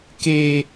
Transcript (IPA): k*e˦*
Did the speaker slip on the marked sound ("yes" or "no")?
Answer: no